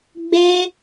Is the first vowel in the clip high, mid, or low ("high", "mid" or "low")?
mid